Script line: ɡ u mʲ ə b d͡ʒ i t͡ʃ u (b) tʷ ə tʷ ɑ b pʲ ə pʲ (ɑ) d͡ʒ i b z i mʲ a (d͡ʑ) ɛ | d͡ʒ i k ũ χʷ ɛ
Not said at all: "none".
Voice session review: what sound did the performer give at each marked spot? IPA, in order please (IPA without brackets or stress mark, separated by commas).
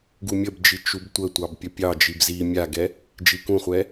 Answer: b, ɑ, ɡ